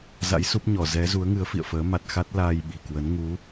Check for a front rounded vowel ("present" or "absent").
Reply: absent